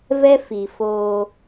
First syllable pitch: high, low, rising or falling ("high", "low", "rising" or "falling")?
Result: high